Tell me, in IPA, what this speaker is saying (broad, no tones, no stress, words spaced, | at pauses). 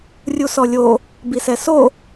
rʲusɔlʲo | bisɛso